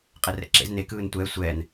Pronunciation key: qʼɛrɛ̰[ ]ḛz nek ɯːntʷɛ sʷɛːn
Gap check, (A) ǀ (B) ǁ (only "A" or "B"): B